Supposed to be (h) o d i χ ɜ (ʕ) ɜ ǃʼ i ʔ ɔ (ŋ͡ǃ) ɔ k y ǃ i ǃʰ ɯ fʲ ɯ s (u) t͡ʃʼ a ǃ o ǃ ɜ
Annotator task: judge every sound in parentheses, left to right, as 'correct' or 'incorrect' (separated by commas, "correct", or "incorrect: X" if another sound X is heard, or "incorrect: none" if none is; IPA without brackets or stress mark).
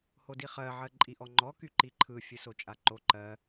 correct, correct, correct, incorrect: o